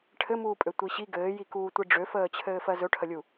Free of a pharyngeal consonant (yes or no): yes